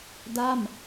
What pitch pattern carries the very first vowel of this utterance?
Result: falling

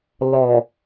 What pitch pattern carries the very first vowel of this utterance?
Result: low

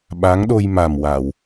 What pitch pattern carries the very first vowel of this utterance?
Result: rising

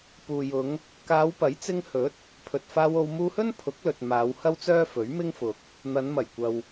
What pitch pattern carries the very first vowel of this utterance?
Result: low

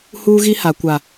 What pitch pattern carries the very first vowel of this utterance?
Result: high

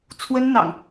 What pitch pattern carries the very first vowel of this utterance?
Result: high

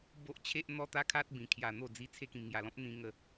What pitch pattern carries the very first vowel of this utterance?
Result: high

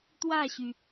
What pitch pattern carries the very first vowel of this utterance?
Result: falling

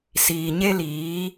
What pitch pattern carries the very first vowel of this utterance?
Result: low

